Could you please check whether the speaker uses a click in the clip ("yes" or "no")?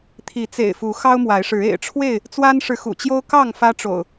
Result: no